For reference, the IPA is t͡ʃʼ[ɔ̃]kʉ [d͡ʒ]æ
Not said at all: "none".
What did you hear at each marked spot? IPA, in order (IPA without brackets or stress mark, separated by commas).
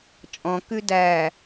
ɔ̃, d